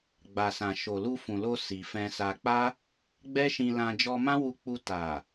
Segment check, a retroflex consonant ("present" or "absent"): absent